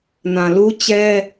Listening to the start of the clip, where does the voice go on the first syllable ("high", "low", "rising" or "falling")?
low